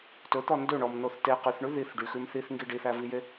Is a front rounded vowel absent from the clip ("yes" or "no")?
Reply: no